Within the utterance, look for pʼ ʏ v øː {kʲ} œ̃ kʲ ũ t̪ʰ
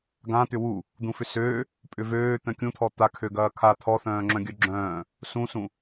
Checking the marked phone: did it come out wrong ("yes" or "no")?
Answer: yes